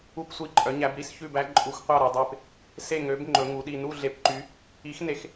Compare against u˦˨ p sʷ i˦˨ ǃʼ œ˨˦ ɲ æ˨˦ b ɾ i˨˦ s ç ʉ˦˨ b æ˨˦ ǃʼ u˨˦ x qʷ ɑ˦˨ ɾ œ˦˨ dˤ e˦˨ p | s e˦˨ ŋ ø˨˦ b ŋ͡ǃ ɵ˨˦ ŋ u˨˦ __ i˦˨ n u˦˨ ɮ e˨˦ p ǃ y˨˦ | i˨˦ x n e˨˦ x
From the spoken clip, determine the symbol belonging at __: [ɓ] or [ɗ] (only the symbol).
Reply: ɗ